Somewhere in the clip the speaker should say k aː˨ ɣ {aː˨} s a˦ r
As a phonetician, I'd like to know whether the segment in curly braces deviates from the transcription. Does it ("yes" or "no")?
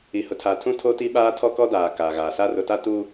no